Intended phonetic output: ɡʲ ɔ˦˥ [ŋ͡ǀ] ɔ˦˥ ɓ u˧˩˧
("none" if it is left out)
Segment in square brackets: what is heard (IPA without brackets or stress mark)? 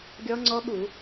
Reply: ŋ͡ǀ